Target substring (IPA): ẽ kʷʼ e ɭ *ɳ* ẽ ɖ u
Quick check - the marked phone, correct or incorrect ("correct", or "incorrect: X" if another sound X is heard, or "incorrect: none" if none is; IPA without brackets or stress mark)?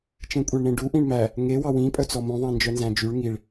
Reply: correct